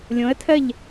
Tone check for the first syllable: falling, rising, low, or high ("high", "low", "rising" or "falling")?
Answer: rising